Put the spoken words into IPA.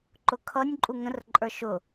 ǃʊkʰʌnʲ ǃʼuŋə̃r ǃʼə˞ʃʊ

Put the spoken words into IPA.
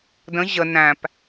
də̃ ʑə næ̃p

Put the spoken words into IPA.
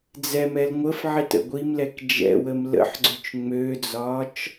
d͡zɛmɛl ŋʷəfʕitə̰ ɡʷimlɛk d͡ʒɛ̰wəm lə̰ħɡ͡ǀøt͡ʃ ŋ͡mød͡zɒːt͡ʃ

